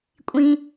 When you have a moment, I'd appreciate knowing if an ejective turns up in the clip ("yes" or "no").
yes